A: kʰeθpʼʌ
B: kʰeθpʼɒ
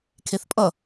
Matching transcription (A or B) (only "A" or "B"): A